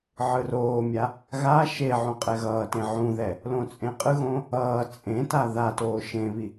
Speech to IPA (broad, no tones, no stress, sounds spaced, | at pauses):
ʕ ɯ r oː mʲ a | ɣ a ʃ e ʕ ũ qʼ ɛ ɣ ʌː t ẽ ʕ ũ ð ɛ | l õ t͡sʼ ẽ qʼ ɯ ɣ õː | ʌː t͡sʼ ẽ t a ð a t oː ʃ ẽ β i